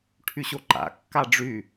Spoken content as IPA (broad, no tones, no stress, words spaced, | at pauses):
ʈʰyɕoǃa̰ kːaɖ͡ʐy